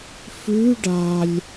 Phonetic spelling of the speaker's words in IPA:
f ʉ ɖ a lʲ

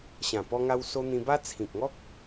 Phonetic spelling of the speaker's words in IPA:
ɕ ã˨˩ p ɔ˧ ŋ a˧ w s o˧ n̪ ĩ˧ b a˦ t͡sʰ ĩ˨ k̚ ŋ ɔ˦ k̚

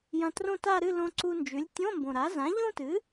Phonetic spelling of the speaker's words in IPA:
j ɐ̃˧ t r õ˥˧ t a˥˧ ɾ ɨ˥˧ l õ˧ ǀ u˧ n d͡ʒ ʉ˩˥ lʲ tʲ õ˧˥˧ m b õ˨˩ ɾ a˩˥ z ã˩˥ ʎ ũ˥˧ t ɨ˩˥

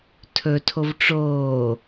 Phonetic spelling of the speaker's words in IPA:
tʰ ɵ tʰ o v ʈ͡ʂ oː

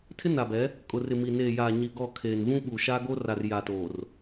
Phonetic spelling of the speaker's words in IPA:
tʰ ɪ˦ n a˨ b ɛ˨˦ | kʼ ʊ˨ r ɪ˨ m i˨ n eː˨ j aː˨ ɲ i˨ ɡ ɔ˦˨ kʰ eː˨ n v ũ˦ ɓ uː˨ ʃ aː˦ ɡ o˦ r a˨ r j a˨ t oː˨ r

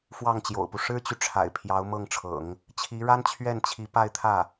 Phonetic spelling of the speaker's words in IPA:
f w ɑ˥˩ ŋ t͡ɕ j o̰˨˩ ʊ̯ p u˦ ʂ ɻ̩˥ t͡ɕ y˨ ʈ͡ʂʰ a̰˨˩ ɪ̯ pʰ j ɑ˧˥ ʊ̯ m ɤ˥˩ ŋ ʈ͡ʂʰ ɤ̰˨˩˦ ŋ | t͡ɕʰ i˧˥ ɻ a˥ n t͡ɕʰ ɥ ɛ˥˩ n t͡ɕʰ i˧˥ p a˥˧ ɪ̯ t̪ʰ ä˥˩

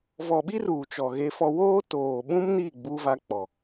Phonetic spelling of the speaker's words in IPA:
v ɔ˨ ɓ i˦ r uː˨ t͡ʃ ɔ˨ ɣ e˦ f ɔ˦ w oː˦ t oː˨ ɓ ũ˦ m n i˦˨ ɡ͡b uː˦ v a˦ k͡p ɔ˨

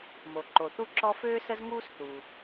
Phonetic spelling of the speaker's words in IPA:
m o˩ ǃ o˩ θ u˥ ǁ ɔ˥ f øː˥ s ə˥ z ŋ uː˥ s θ u˩

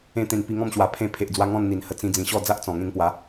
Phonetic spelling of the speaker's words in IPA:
ẽ˧ t̪ ẽ˨˩ n p i˧ ŋ ɔ̃˥˧ m ɕ w a˨˩ pʰ ẽ˧ pʰ e˨ ʔ d͡z w a˧ ŋ ɔ̃˥˧ n n̪ i˨˩ n h ə˧ t͡s ĩ˧ d͡z ĩ˨˩ ɕ ɔ˥˧ d͡z a˦ ʔ t͡s ɔ̃˨˩ ŋ ẽ˧ ŋ p w a˨˦

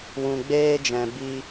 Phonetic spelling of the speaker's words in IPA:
w ũ˧ ɡ͡b eː˦ d͡ʒ ɛ̃˧ b i˧

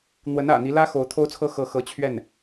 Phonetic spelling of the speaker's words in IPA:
n̪ w ə˧˥ n ä̰˨˩ n̪ i˧˥ l ä˥ x o˧˥ ʊ̯ t̪ʰ o˥ ʊ̯ t͡sʰ ɤ˥ x ɤ˥˩ x ɤ˧˥ t͡ɕʰ ɥ ɛ˥˩ n

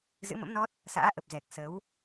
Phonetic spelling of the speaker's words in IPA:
z ɨ̰˧˥ m ə̰˧˥ m n ɔ˦˥ t̚ | s a̰ː˧˥ ʔ ə˨˩ p̚ z ɛ˨˩ k̚ s ə˨˦ w

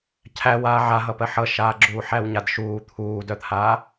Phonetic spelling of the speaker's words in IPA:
cʰ æ w aː ʕ a ɦ ʌ p ɜ ħ ʌ ʃ aː ɡ͡ǁ uː ħ æ w ɲ a d ʃ uː t̪ʰ uː d œ t̪ʰ a

